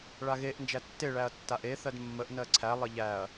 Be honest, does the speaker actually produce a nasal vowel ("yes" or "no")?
no